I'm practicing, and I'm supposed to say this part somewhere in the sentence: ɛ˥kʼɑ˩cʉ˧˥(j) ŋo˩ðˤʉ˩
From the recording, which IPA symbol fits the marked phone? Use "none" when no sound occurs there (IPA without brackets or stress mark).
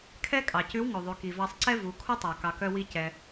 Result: w